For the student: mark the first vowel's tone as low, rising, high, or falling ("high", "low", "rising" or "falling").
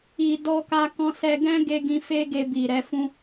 low